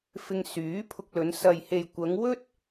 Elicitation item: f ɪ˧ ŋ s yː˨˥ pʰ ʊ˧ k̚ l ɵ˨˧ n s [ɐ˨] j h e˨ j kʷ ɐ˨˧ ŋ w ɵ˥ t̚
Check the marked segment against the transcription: correct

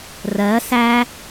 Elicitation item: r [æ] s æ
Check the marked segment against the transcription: incorrect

